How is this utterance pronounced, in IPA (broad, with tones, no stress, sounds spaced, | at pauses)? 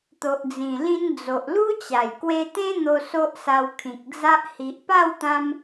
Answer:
t̪ o˨ ʔ d͡z ĩ˨˩ l ĩ˧ n d͡z o˨ ʔ l u˦ t͡ɕ a˨˩ j k w e˧ t̪ ẽ˦ n̪ o˧ s o˦ ʔ s a˧ w kʰ ĩ˨ k̚ d͡z a˦ ʔ h i˨ ʔ p a˥˧ w t̪ ã˧ m